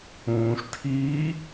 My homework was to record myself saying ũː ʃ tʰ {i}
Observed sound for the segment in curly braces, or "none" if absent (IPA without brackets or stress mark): iː